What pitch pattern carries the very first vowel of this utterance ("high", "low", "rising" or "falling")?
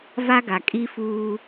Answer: high